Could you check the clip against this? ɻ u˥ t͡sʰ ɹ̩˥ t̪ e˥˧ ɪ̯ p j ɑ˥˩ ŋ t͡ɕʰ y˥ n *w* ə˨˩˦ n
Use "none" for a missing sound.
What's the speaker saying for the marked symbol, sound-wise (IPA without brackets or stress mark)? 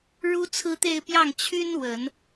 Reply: w